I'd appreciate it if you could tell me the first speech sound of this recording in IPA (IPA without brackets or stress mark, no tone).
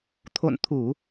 t̪ʰ